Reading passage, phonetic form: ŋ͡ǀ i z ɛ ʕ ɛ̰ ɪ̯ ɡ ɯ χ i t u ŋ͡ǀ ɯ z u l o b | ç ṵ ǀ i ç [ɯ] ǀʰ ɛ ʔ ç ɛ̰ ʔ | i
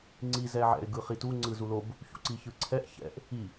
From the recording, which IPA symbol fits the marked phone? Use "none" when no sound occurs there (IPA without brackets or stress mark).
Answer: ɯ